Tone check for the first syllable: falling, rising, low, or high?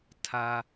low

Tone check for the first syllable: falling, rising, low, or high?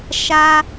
high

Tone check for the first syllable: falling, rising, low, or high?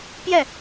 falling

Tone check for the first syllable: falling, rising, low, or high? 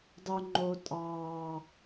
low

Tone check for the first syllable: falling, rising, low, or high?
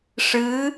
rising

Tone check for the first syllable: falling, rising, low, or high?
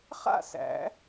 falling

